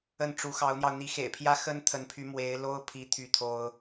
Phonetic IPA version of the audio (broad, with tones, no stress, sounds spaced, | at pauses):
ə˥˩ n ʈ͡ʂ u˧˥ x ɑ˧˥ ʊ̯ n̪ j ɑ˧ ʊ̯ n̪ i˧˥ x ḛ˨˩ ɪ̯ pʰ j ä˥ x ə˥ n t̪ʰ ə˧˥ n pʰ y˧˥ m w e˧˥ ɪ̯ l o˥ ʊ̯ pʰ i˥ t̪ʰ y˥˩ t̪ʰ o˥ ʊ̯